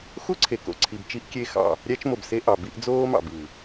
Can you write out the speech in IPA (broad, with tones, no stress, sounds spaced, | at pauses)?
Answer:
x u˦ ǀʰ e˨ k o̰˨ ǀʰ i˨ b t͡ʃ i˦ ʔ kʲ e˦ x ɑ̰˦˨ | ɾʲ æ˦ t͡ʃ m o˨ b s e˦ ʔ ɑ˨ b i˦ ʔ d͡z oː˦ m ɑ̰˨ b ɯː˨